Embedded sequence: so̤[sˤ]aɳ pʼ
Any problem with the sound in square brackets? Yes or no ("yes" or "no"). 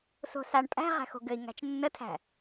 yes